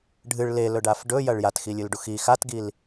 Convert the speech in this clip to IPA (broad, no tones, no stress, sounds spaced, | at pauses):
ɖʱ ɨ ɭ l e l ɵ ɖ a f ɖ ɵ j ɐ ɭ j a t x i lʲ ɨ l ɖ u x i x a t ɡ i l